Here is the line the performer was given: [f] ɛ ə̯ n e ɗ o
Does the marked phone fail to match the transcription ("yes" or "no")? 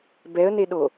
yes